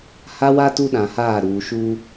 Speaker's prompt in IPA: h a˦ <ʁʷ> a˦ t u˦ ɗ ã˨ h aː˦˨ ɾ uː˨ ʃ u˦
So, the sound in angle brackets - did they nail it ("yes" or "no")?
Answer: no